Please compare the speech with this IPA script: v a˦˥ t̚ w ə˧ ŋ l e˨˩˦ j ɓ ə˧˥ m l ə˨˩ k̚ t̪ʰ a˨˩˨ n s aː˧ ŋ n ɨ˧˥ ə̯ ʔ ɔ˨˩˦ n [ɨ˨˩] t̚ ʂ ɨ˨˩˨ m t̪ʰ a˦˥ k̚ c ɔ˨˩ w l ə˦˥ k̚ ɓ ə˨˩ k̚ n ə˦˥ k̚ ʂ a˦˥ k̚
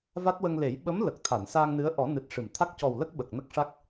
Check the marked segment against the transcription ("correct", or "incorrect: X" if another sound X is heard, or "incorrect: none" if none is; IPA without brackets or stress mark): correct